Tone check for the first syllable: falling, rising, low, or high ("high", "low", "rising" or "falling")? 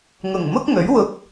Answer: low